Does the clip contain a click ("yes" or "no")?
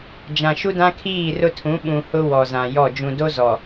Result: no